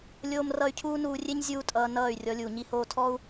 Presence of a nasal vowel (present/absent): absent